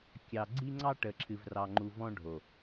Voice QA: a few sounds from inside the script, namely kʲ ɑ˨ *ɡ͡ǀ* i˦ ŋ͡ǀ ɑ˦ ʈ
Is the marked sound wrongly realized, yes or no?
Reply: no